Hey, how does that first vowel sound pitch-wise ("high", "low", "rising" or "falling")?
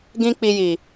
high